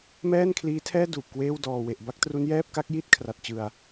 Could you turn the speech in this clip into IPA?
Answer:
mɛː˥˩nkʰliː˦˥tʰɛː˥˩ duː˨˩p̚kweː˥˩w dɔː˨˩we˨˩ʔ ba˥˩k̚tru˦˥njɛː˥˩p̚ka˦˥k̚ ji˥˩t̚ kʰra˨˩t̚t͡ɕɯ˨˩a̯

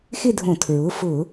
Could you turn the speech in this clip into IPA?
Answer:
xɪ˥˧dʱõ˧˩˧tʰɹʊ˩˧˩fʊ˧˩˧

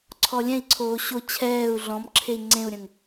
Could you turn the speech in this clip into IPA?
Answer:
ǀʰɔlʲɛ̃i̯ǀʰoː ɕo t͡ɕʰɛːu̯ ɮɔ̃mǁʰei̯ ŋ͡ǀẽu̯ɾʲə̃ŋ

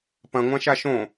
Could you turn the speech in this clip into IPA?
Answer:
pɐ̃ŋʷãʃa ʃõ

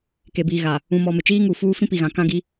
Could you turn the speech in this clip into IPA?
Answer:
ke˨biː˨ ɣa˨ | ũ˨mɔ˨ mɪ˨t͡ʃiː˦ŋu˨ fuː˦ fĩ˦pi˨ɣã˨ kã˦ɡi˦

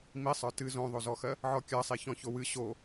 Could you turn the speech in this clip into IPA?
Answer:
misˤə˞ tɨ zõðˤozɔxɜ | ʕɔkʲɜsˤiçɔ̃ çowɨ ɕo

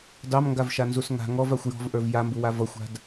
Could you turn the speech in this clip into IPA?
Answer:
dɑmŋɡavʃanzus ŋa̤ ŋɔvaxʷ jɔ̤vʔə˞v jambuwa vʌxʷa̤d

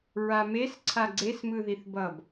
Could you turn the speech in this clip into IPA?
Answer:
ɹames ǀʰaɡ͡ǀes mɯðiθbʌb

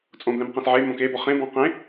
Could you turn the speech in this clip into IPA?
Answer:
t͡sʼõblɛ̃mqɛ̃s ʕe mõkebɔ χẽbɔ̃ qẽ

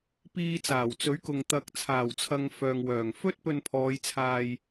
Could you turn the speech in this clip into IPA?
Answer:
piː˧t͡saː˨˩wt͡sɵ˨˥ɥkʊ˨ŋ t̪ɐ˨k̚t͡sʰaː˨˩wt͡sʰɐ˨ŋ fœː˨ŋwœː˨˩ŋ fɵ˥t̚pɵ˧npʰɔː˨˧jt͡sʰaː˧j

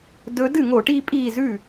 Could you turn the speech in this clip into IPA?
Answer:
dɵ˨˦dɨ˥˩ŋo˧˩˧ʈi˦ pʼi˥˩zʉ˥˩

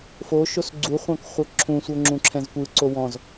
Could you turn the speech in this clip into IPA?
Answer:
foʃos ɡ͡ǀuχʷɑ̃k χʷɤǁʰũsʷɤ ŋ͡ǁũǁʰɛ̃zkʷɯǀo wɔ̃z

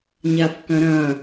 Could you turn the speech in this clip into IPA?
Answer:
ɲafkɐ̃ɾɐ̃

